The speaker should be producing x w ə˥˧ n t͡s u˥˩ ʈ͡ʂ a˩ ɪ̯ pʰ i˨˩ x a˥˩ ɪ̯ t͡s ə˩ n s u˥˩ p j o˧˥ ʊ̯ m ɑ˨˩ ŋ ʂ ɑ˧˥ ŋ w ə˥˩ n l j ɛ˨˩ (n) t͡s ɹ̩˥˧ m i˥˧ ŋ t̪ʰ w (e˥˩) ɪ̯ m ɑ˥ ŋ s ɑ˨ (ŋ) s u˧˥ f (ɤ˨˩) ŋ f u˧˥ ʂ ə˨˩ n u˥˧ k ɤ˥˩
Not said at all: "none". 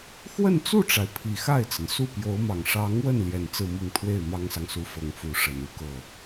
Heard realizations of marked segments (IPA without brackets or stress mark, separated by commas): n, e˥˩, ŋ, ɤ˨˩